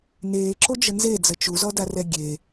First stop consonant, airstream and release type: click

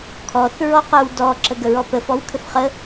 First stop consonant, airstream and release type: aspirated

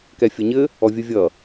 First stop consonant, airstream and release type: plain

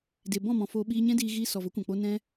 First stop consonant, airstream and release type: plain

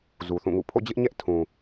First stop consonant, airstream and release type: aspirated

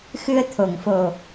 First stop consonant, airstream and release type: aspirated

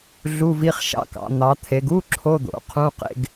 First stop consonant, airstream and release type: plain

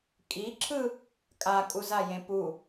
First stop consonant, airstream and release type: ejective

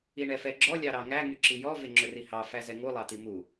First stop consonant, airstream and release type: click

